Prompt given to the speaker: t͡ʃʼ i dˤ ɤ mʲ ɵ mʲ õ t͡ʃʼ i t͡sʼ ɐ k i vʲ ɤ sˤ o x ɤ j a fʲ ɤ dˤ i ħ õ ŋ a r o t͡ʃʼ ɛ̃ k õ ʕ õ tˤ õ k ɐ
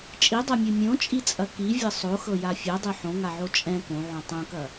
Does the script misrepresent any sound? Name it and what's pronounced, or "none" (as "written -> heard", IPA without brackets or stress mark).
r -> ʕ